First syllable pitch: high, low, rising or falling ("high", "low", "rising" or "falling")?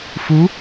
rising